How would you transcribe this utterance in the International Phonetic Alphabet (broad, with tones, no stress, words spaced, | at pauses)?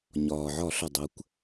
ɲɒː˩ʕɒ˧˩˧ɬʌ˩ dˤə˩˧kʷ